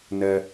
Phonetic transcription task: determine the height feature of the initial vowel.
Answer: mid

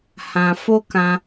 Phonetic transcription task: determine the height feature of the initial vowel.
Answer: low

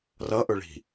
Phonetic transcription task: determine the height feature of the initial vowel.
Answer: mid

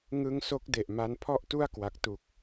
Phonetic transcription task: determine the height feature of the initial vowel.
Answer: high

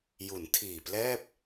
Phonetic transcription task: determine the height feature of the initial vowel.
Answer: high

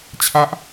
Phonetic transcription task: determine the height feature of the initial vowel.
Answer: low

